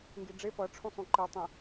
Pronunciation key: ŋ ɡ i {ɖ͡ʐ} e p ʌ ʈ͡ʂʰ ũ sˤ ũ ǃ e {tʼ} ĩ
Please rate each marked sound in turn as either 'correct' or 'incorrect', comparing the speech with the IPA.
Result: correct, incorrect

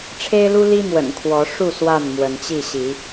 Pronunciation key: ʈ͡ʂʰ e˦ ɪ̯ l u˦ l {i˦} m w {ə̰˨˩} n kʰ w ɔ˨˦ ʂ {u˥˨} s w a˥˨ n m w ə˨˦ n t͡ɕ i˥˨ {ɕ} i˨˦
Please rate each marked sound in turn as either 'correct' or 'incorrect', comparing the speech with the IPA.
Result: correct, correct, correct, correct

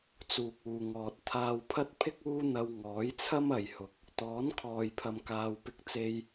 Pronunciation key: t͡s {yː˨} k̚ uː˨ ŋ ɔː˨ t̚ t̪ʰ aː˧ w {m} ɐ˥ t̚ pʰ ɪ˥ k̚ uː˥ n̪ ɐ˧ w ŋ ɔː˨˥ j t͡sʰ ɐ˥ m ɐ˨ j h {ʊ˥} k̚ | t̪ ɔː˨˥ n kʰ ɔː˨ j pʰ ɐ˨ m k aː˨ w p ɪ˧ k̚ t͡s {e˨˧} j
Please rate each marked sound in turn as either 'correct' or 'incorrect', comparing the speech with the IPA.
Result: incorrect, incorrect, incorrect, incorrect

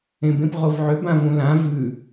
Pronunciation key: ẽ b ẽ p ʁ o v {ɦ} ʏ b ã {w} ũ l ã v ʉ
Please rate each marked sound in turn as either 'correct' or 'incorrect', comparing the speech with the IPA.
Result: incorrect, incorrect

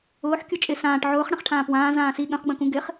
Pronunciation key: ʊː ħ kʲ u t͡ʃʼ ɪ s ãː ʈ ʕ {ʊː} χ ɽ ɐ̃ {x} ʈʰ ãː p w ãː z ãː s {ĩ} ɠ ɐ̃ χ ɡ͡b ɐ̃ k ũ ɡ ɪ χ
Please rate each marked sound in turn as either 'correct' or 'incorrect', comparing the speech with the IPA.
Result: correct, incorrect, incorrect

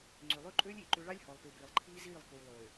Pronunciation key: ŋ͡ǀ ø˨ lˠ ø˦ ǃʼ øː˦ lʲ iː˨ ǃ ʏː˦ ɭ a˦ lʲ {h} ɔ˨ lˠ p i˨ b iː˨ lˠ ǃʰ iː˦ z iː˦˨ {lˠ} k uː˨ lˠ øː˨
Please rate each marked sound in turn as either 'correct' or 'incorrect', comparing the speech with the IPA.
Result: correct, correct

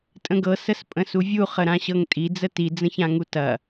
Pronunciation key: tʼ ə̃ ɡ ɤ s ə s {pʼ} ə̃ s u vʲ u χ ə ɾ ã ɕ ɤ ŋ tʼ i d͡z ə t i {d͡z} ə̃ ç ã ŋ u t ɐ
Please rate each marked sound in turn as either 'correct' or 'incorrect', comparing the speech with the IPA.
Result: correct, correct

